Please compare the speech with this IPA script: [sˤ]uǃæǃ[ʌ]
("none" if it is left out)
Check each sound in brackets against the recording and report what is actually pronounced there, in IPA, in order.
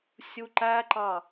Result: sʲ, ɑ

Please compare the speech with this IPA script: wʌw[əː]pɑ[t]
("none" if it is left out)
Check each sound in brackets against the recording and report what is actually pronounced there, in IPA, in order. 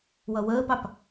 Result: əː, p

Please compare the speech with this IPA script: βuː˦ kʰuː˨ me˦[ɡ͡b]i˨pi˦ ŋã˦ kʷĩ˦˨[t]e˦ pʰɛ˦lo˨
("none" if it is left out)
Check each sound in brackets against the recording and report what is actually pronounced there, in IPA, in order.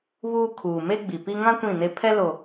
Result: ɡ͡b, n

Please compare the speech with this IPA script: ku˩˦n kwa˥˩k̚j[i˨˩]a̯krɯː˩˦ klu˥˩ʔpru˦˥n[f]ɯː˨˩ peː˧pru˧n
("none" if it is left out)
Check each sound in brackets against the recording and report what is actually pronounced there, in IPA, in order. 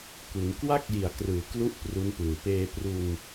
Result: i˨˩, p

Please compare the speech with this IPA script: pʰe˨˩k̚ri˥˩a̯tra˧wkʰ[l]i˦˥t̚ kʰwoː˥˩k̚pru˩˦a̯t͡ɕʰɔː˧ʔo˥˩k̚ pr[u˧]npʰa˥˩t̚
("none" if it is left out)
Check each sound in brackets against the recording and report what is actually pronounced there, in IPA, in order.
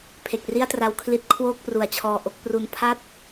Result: l, u˧

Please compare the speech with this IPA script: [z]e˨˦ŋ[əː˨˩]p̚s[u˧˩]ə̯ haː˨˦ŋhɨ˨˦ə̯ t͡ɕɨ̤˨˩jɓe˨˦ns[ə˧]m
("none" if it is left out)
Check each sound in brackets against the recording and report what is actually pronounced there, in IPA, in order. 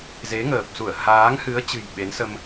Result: z, əː˨˩, u˧˩, ə˧

